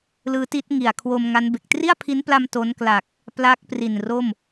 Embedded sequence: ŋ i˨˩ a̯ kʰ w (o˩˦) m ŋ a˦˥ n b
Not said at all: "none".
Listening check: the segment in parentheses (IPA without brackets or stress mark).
o˧